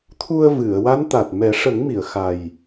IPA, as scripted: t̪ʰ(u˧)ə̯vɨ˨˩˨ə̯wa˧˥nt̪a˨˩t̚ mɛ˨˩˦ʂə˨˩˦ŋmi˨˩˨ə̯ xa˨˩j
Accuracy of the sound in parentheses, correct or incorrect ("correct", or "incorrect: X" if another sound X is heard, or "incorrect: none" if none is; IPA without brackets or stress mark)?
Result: correct